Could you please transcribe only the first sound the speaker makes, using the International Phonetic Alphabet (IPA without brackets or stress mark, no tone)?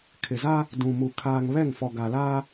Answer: kʰ